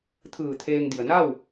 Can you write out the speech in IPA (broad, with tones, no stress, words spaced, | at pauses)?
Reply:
t̪ʰɯː˧˩t̪ʰeː˧ŋdi˩ə̯ na˥˨w